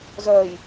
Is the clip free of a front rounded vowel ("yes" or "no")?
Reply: no